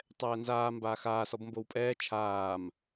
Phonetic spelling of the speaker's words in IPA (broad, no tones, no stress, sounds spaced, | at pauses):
tˤ ɛː n z aː m b aː x aː s ɔ b m b o w pʼ ɛː t͡ʃʰ aː m